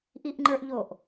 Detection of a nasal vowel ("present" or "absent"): absent